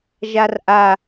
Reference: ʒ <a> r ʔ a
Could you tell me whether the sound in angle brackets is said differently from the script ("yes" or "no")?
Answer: no